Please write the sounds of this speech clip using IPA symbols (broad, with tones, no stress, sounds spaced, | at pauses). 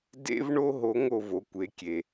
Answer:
d ḛ˥ v ɳ o˥ ɦ o˧˥ ŋ o˧ v o˩˧ kʷ e˩˧ kʲ e˩